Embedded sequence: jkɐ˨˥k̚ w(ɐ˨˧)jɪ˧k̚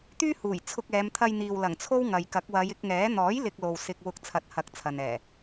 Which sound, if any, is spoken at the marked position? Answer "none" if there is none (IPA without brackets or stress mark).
ɐ˨˧